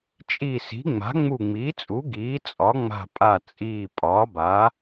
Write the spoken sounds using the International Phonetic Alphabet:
t͡ʃʼ i˧˩ s i̤˩˥ ŋ͡m a̤˩˥ ŋ͡m u˧˩ ŋ͡m iː˩˥ t͡sʼ u˩˥ ɡ iː˩˥ t͡sʼ ɒ˩˥ ŋ͡m a̤˧˩ pʼ a˧˩ t͡sʼ iː˧˩ pʼ ɒː˩˥ b a˩˥

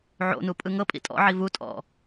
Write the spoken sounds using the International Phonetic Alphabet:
ʕ o̰ n u pʼ ɯ ŋ ɤ pʼ ḭ tʼ ɔ̰ ʕ i v u tʼ ɔ̰

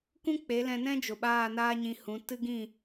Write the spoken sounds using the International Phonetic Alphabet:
k ũ˦ k͡p e˨˦ l ɛ̃˧ n ɛ̃˦ d͡ʒ o˨ ɓ aː˦˨ n aː˦ ɲ ĩ˧ h ũ˨˦ t ɨ˦ ɡ ĩ˦˨

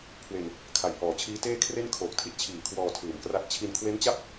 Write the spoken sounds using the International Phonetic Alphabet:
kʰ w e˧ n | kʰ a˨˩ j h ɔː˨˩ t͡ɕʰ iː˦˥ t eː˥˩ kʰ r e˥˩ n kʰ oː˨˩ k̚ tʰ i˦˥ t̚ t͡ɕʰ iː˨˩ kʰ w ɔː˧ tʰ ɯː˨˩ m k r a˦˥ t̚ t͡ɕʰ i˧ n kʰ w e˦˥ n t͡ɕ a˥˩ p̚

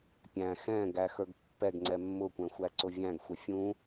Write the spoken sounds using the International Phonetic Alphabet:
pʲ æ̃ x ɛ̃ ɡ æ x ə˞ ɡ pː ɛ ɡ ŋ͡ǀ ɛ mː ʊ kʷ ɛ̃ xʷ æ ǀ ʊ vʲ æ̃ ɡ xʷ ɛ fʲ ũ

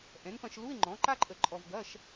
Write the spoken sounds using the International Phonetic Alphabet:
ʔ ɛ̃˩˥ n p ɐ̃˧ ʃ l u˧˥˧ ɪ̯ ŋ͡ǃ ɔ̃˩˥ ǃ a˦˥ ǃʼ ə˧˩ ǃʼ ɔ˧ v ɡ ɐ˧˥˧ ʃ

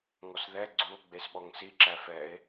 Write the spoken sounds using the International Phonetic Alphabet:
ŋ ɔ s ð ɛ ɡ͡ǀ u o̯ ɡ͡b e s ɓ ɔ ŋ s i ǁ æ f ɛ e̯

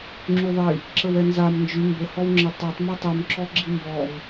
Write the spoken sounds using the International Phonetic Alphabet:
ŋ͡ǁ y ðˤ i | ǁ ə w ɛ n z a m n d͡ʒ y m b ə h ɔ w ŋ͡ǁ ə tˤ ɛ tˤ m ɛ tˤ y m ǁ ɔ ɡ͡ǁ i m b ɔ m

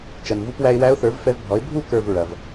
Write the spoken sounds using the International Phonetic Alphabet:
t͡ʃ ɐ˩ n v u˧ p w æ˧ ɪ̯ w æ˧˥ ʊ̯ θ ə˞˩˥ v f ɛ˧ v bʱ ɔ˩˥ ɪ̯ bʱ u˥˨ k ə˞˥˨ v ɹ ɐ˩ v

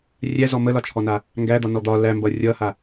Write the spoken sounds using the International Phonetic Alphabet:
rʲ æ z ɔ m ə l ɒ t͡ʃʰ ɔ n a | ŋ ɡ æ d̪ ɒ n ɔ d̪ ɒ l æ m b ʌ rʲ ʌ h a

